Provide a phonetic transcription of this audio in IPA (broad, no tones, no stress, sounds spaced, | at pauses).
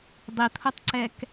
dˤ i t̪ʰ o tˤ ǀ ɛ k